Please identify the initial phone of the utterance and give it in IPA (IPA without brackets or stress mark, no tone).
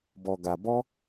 b